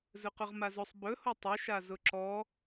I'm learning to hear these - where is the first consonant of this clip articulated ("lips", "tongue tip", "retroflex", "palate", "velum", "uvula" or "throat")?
tongue tip